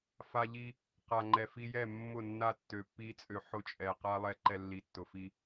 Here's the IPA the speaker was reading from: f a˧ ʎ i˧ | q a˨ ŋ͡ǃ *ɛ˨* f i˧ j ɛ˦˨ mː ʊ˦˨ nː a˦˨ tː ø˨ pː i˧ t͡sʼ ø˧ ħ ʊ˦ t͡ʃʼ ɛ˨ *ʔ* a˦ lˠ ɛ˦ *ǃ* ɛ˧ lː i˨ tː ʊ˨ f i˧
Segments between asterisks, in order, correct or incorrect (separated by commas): correct, incorrect, correct